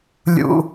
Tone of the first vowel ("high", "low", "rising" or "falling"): high